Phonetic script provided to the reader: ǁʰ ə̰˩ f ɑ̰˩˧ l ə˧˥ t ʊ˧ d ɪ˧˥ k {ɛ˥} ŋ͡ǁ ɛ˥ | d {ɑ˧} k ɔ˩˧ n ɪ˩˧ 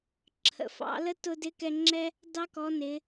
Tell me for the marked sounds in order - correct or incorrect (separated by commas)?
incorrect, correct